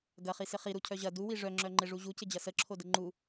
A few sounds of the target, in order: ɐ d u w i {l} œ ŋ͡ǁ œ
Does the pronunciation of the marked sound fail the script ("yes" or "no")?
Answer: yes